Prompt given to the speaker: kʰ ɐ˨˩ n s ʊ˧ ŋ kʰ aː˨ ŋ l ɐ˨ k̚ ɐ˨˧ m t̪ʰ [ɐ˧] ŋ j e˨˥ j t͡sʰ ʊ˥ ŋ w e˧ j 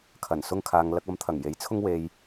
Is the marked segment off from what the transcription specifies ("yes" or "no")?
yes